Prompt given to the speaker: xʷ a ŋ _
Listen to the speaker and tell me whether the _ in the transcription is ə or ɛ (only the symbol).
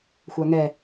ɛ